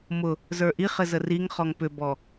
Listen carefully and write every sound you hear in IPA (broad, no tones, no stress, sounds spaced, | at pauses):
m ʊ | z ə˞ ʔ i χ ɘ z ə r i ŋ χ ɔ ŋ p ʏ b ɔ